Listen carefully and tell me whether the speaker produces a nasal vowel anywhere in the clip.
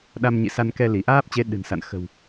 no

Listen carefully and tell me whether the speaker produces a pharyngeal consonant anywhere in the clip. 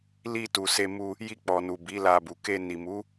no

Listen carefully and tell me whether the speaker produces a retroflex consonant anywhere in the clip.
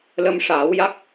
yes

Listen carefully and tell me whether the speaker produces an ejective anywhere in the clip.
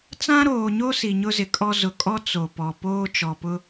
yes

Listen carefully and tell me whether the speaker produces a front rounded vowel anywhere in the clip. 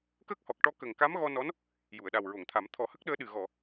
no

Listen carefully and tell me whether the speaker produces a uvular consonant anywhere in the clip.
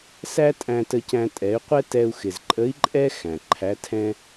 yes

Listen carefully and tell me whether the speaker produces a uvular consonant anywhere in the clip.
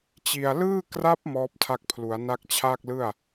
no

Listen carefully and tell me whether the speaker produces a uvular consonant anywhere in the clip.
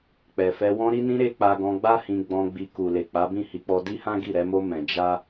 no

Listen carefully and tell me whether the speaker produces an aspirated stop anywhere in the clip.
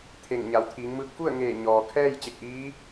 yes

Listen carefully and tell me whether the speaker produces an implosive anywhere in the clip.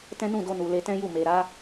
no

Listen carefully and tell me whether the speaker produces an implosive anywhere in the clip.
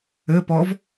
no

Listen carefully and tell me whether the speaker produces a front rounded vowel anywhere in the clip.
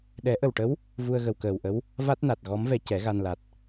no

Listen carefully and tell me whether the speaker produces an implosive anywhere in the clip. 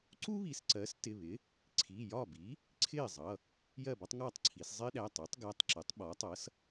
yes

